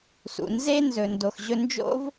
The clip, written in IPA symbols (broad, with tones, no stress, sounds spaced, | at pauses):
s ṵ˩ n z e˥ n z ɵ˩ n d o˩ x ʑ ɵ˧ n d͡ʒ o̰˥ v